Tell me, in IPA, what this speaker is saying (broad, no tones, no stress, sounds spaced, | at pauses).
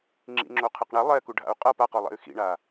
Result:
ŋ͡ǁ ḭ ŋ͡ǁ o qʰ ɯ q ɳ ɛ lˠ ɛ k u ɖʱ a̰ u̯ qʼ ʌ p a q o lˠ ḛ y̯ x ḭ ɳ a